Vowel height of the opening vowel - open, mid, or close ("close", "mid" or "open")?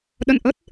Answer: mid